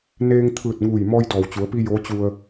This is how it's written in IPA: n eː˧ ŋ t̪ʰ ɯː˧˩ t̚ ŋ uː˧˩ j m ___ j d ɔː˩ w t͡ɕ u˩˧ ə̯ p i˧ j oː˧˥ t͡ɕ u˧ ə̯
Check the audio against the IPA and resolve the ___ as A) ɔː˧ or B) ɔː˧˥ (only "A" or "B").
A